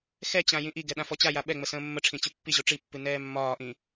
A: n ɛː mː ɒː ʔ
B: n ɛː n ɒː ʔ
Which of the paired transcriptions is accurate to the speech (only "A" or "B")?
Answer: A